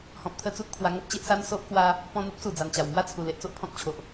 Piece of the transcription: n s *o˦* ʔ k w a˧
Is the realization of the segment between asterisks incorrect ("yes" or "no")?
no